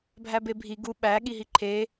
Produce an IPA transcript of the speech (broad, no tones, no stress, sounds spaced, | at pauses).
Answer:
bʱ æ b e bʱ i ɡ u ɓ æ ɠ i ɦ i ǃʰ e